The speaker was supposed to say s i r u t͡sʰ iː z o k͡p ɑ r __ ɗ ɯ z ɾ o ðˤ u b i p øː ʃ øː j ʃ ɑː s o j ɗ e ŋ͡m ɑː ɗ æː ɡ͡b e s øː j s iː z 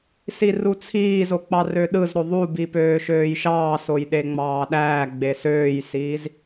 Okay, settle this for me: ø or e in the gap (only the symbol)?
ø